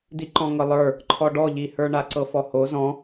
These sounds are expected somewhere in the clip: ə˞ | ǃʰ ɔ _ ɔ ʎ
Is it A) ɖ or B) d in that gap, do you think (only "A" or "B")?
A